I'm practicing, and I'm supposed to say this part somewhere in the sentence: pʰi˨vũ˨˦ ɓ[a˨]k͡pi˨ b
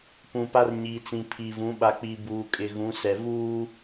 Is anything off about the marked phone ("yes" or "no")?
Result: no